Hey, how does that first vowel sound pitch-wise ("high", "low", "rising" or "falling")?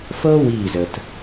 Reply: high